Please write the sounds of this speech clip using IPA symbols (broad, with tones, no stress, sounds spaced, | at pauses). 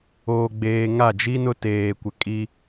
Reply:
oː˨ ɡ͡b eː˨ ŋ a˦˨ d͡ʒ i˦ n ʊ˦ t eː˨ kʷ ɪ˨ kʼ i˦